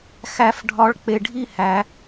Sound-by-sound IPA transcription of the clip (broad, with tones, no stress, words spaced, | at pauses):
xæ˨˩˦fɖʱɒ˨˦ɭ k͡pe˨ɖʱi˥˧hæ˨˩˦